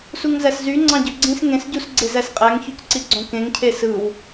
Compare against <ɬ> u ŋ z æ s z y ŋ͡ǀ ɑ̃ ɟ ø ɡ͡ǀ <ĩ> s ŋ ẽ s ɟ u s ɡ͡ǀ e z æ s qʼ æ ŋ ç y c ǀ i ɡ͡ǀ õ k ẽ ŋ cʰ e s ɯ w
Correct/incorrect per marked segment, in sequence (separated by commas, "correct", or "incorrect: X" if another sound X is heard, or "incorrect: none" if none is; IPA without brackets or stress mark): incorrect: s, correct